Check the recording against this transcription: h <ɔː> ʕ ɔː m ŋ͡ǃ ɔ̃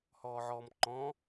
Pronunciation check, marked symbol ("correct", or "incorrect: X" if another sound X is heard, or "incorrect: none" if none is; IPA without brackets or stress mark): correct